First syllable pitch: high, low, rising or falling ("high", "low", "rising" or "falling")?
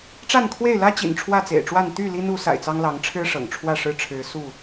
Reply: falling